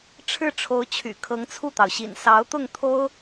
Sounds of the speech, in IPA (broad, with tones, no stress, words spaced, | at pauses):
ʈ͡ʂʰɻ̩˥˩ʈ͡ʂʰo˧˥ʊ̯t͡ɕʰy̰˨˩ kʰɤ˧˥ŋt͡sʰu˥˩t̪ɑ˩ʊ̯ɕḭ˨˩n sɑ˧˥ʊ̯t̪ʊ˥˩ŋt̪ʰo˥ʊ̯